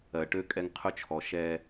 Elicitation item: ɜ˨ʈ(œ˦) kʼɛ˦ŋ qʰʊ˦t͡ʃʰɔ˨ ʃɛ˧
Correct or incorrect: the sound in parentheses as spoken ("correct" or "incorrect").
incorrect